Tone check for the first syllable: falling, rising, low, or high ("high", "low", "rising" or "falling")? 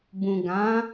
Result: low